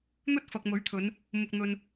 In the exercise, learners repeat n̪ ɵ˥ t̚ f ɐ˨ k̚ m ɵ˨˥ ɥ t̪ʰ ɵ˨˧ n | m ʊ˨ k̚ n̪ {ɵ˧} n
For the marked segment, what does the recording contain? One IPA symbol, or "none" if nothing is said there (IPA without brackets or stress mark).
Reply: ɵ˨